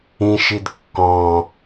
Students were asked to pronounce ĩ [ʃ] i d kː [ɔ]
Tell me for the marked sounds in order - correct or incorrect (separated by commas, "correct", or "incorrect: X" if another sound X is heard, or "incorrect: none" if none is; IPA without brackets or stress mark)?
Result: correct, incorrect: ɔ̃